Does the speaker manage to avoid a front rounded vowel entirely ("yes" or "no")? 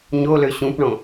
no